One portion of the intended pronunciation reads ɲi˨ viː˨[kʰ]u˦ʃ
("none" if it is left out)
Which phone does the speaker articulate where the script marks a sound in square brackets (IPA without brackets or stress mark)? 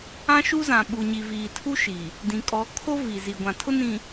tʰ